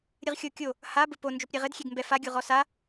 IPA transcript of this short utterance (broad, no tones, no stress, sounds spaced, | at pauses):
ɾʲ ɨ ʁ xʲ o kʲ o | h a b ɘ p o n d͡ʒ o p ɾʲ e ʁ ɘ d xʲ e ɡ m b ɛ f a ɡʲ u ʁ ɔ s a